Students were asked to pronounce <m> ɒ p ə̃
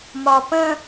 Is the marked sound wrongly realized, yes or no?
no